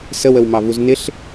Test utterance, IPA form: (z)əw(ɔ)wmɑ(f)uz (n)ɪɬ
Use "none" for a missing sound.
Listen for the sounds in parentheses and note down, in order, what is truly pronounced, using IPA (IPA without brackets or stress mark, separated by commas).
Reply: s, ə, v, n